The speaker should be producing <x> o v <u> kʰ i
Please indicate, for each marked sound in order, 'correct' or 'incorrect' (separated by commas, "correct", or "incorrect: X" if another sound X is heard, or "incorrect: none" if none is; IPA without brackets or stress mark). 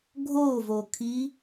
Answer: incorrect: ɡʱ, incorrect: o